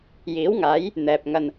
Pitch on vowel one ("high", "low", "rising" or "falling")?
rising